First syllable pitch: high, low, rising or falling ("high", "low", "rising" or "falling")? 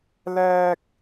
high